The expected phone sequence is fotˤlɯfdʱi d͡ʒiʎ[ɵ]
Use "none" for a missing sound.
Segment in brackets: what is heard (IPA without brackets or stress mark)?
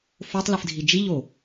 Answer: o